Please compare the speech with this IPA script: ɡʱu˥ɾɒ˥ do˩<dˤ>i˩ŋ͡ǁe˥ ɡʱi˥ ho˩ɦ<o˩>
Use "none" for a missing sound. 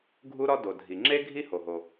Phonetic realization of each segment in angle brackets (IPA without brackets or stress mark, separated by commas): dʱ, o˩